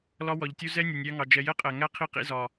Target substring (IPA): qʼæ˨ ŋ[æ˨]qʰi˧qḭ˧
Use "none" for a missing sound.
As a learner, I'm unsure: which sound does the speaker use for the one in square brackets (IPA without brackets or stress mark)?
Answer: æ˦